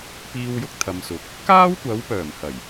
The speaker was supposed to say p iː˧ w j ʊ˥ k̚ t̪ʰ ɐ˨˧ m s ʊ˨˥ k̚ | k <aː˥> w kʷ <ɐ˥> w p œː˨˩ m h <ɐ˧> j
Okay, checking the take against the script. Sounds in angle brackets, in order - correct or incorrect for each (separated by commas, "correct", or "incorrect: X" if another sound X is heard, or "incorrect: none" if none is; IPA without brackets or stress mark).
correct, incorrect: ɐ˨˥, incorrect: ɐ˨˩